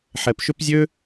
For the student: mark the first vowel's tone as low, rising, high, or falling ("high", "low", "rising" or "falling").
low